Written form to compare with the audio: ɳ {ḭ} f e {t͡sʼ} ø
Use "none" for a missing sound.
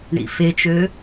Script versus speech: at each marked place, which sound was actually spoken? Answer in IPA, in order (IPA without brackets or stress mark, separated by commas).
ḭ, t͡ʃ